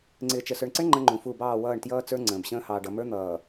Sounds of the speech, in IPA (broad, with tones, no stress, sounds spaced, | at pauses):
ŋ͡ǀ ɪː˨ t͡ʃ ə˨ s ə˞˨ ɳ ǀ ə˦ ɳ ŋ͡ǃ ə̃˦ ŋ͡ǃ ũ˨ f u˦˨ b ɑː˦˨ w ʌː˦˨ ɳ t j ʌː˦ t͡s ə˞˦ ŋ͡ǀ ə̃ː˨ b ɕ ə̃ː˦ h ɑː˨ ɖ ʌ˨ m ə˞˦ n̪ ʌː˨